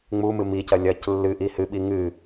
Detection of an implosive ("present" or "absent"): present